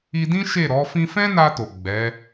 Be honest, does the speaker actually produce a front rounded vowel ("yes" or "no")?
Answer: no